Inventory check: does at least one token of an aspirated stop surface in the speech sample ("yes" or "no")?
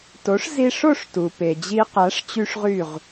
no